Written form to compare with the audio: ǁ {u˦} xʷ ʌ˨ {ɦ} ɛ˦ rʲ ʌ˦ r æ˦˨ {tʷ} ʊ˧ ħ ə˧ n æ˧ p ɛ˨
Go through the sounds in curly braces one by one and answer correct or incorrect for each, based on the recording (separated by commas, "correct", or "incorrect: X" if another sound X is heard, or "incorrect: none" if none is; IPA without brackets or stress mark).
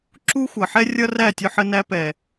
correct, incorrect: ħ, incorrect: tʲ